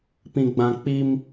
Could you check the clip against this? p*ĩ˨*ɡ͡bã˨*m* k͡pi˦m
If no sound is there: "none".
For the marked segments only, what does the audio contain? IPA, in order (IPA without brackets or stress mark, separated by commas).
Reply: ĩ˨, none